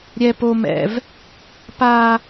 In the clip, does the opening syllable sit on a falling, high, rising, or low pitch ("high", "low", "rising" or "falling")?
high